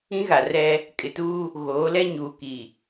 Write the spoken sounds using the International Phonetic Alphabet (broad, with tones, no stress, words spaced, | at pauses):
ĩ˦ɣa˨rɛ˦ | kʼɪ˨tuː˦ | ɣoː˨˦lɛ˦ ɲuː˨ki˨